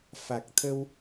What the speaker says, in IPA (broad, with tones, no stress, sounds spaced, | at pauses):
f a˨˩ k̚ t̪ʰ ə˧ w